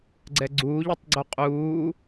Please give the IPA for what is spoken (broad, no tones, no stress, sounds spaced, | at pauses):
ɡ͡ǀ ɛ ɡ͡ǀ uː ʎ ʌ tˤ ɡ͡ǀ u qʼ uː